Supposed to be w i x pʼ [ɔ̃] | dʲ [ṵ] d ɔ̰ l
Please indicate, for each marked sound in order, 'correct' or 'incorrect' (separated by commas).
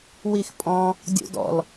correct, correct